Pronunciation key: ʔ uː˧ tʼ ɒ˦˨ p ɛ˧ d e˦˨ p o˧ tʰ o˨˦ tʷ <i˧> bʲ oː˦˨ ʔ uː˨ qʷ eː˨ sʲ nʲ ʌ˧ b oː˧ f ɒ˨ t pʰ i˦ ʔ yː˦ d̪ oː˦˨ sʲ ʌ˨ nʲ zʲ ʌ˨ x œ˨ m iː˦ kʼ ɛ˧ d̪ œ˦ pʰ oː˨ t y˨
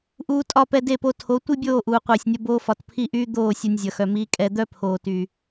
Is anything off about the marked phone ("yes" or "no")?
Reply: yes